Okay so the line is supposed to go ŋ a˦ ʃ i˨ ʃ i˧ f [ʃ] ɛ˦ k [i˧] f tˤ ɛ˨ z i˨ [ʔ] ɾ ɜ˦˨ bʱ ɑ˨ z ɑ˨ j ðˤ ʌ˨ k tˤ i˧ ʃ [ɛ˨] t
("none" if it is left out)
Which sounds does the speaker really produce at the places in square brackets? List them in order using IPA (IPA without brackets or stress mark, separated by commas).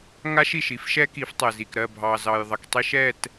ʃ, i˨˦, k, ɛ˦˨